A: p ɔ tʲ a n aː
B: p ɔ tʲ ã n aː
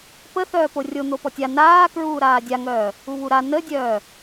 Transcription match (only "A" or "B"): A